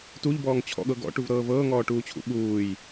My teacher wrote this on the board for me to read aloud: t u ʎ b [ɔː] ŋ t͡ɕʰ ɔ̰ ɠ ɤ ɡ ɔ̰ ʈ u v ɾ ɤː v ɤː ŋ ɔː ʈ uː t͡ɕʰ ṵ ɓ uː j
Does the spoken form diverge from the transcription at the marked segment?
no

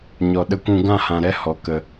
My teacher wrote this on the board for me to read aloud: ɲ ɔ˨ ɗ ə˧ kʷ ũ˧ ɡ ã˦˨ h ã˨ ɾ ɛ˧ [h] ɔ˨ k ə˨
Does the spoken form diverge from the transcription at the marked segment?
no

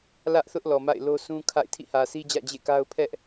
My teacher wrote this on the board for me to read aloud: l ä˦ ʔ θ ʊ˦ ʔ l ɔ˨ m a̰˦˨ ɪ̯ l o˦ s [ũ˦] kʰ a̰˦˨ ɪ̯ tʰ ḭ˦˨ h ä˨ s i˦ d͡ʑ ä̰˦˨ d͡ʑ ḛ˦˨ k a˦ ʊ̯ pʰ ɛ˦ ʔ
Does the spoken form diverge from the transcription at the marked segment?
no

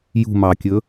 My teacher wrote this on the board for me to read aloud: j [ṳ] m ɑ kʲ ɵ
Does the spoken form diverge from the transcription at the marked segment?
no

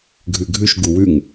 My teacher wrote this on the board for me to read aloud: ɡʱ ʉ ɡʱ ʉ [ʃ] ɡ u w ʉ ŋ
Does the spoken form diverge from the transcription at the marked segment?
no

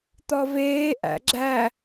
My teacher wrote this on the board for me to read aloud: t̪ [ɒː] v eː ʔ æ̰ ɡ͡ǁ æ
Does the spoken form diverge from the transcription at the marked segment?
yes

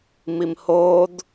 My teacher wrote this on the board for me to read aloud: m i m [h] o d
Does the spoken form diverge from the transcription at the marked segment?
no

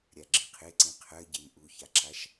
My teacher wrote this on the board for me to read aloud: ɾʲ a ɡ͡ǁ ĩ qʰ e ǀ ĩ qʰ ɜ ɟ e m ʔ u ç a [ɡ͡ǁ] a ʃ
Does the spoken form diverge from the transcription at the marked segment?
yes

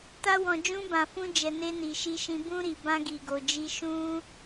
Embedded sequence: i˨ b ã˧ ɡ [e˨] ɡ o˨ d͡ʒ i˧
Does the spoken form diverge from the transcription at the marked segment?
yes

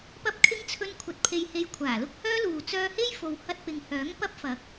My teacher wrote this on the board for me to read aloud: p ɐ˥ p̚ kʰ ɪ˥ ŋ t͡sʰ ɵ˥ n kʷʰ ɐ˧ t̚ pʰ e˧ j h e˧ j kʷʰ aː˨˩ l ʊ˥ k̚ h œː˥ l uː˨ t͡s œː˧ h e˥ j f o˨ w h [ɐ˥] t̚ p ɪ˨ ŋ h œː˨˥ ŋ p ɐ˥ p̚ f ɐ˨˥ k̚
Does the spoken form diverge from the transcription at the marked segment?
yes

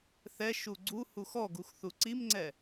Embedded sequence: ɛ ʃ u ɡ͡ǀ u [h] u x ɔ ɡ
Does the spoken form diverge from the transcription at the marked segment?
no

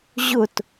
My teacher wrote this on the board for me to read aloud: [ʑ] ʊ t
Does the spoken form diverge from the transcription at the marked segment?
no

